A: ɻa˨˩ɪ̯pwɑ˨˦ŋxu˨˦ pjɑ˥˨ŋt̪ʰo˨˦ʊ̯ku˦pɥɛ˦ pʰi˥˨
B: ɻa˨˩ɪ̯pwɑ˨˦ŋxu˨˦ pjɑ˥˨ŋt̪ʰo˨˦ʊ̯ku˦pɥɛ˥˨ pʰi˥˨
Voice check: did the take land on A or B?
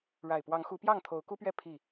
B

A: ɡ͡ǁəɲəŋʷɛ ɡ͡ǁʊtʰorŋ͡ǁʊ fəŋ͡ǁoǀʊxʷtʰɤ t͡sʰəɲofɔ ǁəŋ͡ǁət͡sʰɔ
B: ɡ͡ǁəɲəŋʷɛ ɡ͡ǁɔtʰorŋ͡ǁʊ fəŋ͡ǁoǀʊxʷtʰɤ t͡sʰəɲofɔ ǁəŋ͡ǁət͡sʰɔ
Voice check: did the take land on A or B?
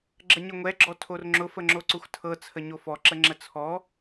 B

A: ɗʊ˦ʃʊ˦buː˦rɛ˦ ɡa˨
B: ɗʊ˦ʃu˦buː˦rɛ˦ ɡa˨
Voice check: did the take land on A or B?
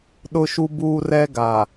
B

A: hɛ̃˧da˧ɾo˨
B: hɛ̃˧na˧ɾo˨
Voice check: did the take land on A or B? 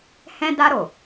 A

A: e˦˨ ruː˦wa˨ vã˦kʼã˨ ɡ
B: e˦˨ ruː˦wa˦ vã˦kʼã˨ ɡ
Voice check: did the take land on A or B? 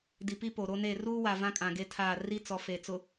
A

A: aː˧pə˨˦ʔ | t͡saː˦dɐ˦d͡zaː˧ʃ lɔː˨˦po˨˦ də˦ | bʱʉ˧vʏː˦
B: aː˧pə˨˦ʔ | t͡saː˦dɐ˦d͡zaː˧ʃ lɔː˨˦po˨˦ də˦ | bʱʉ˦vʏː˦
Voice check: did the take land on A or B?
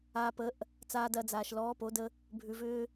A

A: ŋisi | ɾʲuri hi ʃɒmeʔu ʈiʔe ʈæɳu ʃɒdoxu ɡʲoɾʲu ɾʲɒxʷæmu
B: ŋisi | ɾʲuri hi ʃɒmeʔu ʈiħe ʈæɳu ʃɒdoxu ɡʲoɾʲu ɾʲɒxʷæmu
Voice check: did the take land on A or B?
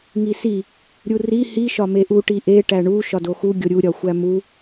A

